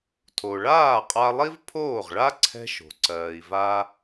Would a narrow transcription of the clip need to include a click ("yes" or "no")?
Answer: yes